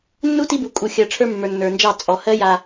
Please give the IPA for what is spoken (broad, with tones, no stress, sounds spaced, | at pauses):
nː u˦ t i˦ b u˨ kʼ u˨ xʲ ɜ˨ ʈ͡ʂʰ ə˞˦ mː ə˞˨ nː ə˞˨ n d͡ʒ ɑ˦˨ t͡sʼ ɔ˨ h ɜ˦ j a˨